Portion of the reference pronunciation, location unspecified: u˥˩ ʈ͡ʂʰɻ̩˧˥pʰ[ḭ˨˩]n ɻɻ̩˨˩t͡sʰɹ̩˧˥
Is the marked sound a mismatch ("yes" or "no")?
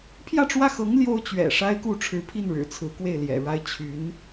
yes